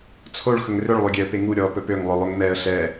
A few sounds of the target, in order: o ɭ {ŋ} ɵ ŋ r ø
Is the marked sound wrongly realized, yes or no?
yes